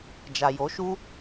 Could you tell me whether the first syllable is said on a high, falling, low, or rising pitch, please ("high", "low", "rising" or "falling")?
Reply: low